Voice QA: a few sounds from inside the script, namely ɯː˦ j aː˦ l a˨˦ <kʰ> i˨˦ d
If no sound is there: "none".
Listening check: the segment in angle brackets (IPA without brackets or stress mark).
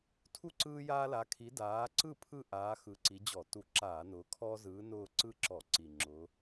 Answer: kʰ